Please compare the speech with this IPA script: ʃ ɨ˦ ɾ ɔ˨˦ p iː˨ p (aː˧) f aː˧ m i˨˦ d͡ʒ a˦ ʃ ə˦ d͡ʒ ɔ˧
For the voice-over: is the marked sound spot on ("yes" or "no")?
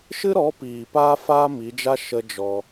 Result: yes